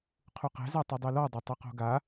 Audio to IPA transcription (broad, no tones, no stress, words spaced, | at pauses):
qʰuqɛ̤za tˤɨdˤɨlɔdˤe tˤuqo̤ɡa